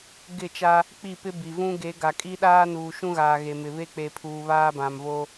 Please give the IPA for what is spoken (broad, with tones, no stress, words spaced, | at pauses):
ɡɪ˦˨t͡ʃa˦ | k͡pi˦˨pɪ˦bi˨ vũ˦ɡe˨˦ ɡa˨kʼi˦ɗaː˦ nuː˨ʃũ˦ɣaː˨ ɣe˨mɪ˨ βe˦k͡pe˨pʰuː˨ βaː˦bã˨mvo˦